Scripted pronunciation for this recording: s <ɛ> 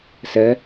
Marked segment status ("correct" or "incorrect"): incorrect